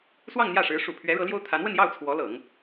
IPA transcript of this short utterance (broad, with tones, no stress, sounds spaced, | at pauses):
s w ɑ˥˧ ŋ n̪ j ä˥˩ ʂ ɻ̩˧˥ ʂ u˨˩ pʰ ɥ ɛ˧˥ ɻ ɤ˧˥ l j o˥ ʊ̯ t̪ʰ a˧˥ n w ə˥˧ n j ɑ˥˩ ʊ̯ t͡sʰ w ɔ˧˥ l ɤ˨˩˦ ŋ